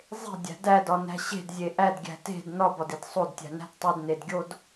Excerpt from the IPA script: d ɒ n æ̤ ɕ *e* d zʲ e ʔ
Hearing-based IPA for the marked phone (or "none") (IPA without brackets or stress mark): e̤